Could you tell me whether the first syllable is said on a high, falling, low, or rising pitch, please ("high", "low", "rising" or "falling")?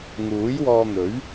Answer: rising